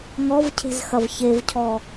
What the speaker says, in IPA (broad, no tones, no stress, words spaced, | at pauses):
ŋɔvcʰe̤z xɐvçevcʰɔ